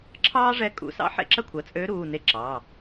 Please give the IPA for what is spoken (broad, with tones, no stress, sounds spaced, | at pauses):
ǁʰ ɑː˥ ʐ ɛ˧˥ kʼ ṵ˩˧˩ s ɑ̰˧˥ ħ ḛ˥ ǁ ɐ˥ kʷʰ ɐ˩˧˩ t͡sʼ øː˧˥ ɾ uː˩˧˩ n e˧˥ ǁ ɑː˩˧˩